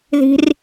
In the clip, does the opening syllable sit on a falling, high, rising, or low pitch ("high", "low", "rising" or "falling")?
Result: high